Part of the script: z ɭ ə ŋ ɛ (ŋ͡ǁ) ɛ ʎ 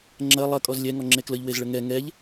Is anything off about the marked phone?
yes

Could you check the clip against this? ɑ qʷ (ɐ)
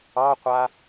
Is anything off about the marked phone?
yes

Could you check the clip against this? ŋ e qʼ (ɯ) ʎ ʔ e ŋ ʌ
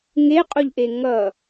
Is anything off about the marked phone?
yes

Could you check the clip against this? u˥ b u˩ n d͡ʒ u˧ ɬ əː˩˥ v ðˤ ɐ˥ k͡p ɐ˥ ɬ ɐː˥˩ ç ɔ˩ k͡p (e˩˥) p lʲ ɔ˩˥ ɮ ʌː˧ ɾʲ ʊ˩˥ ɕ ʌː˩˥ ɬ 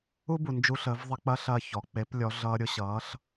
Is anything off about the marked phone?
no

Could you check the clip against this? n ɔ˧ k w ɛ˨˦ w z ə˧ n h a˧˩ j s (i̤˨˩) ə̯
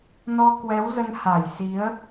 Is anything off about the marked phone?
yes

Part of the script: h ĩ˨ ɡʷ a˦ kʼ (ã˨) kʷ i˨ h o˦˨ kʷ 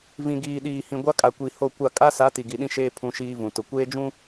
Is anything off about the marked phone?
yes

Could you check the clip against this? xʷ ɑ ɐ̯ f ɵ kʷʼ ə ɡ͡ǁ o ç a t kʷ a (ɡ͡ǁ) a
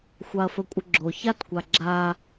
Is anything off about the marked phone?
no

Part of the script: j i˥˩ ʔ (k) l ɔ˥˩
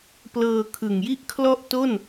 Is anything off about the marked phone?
yes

